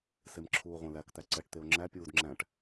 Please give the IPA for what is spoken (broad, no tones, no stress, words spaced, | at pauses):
semǁʰuːʁʷɛ̃læk t̪æǀɛʈ t̪eo̯ŋ͡ǁæ pʲuːdŋ͡ǁæ̃ʈ